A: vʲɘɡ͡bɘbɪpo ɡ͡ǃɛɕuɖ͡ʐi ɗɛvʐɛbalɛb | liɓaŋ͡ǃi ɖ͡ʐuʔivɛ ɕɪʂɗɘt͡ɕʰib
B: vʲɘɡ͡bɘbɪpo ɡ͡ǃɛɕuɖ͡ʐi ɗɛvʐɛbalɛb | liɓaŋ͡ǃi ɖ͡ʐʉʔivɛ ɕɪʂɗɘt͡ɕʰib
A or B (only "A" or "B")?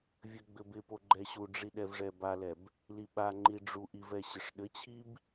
A